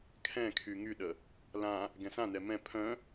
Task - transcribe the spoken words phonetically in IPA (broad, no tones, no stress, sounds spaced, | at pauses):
kʰ ɛ̃ kʰ y ŋ y ɗ ə | l ã | ɡ ɛ̃ s ã n ɛ m ɛ̃ pʰ œ̃